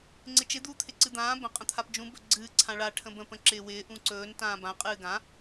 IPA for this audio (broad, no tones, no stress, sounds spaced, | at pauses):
ŋ͡ǀ ɪ t͡ʃ ɪ d̪ uː t̪ʰ ɪ ǀ ɨ d̪ ãː b ə̃ qʼ ə̃ t̪ʰ a p d͡ʒ ũ b ɵ ɡ͡ǀ ɨː ǀʰ ã ɭ a ʈʰ ə̃ b ə̃ p ə̃ ǁ ɪː w ɪː ʔ ũ ǀ ɵː n t ãː b ã qʼ ɨː ɡ ã